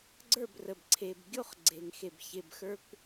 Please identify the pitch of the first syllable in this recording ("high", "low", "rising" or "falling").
falling